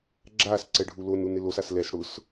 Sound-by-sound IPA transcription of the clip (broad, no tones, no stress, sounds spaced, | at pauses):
ɡ͡ǁ a s ǀ ɛ ɖʱ u l o n u n ɪ l o s a s l ɛ s ɽ ʊ s